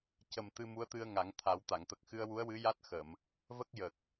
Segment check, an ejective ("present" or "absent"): absent